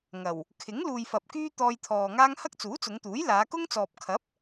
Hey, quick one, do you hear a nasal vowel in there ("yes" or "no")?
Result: no